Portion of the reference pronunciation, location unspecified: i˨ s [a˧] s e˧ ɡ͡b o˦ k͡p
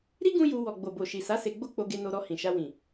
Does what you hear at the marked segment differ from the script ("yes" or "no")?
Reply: yes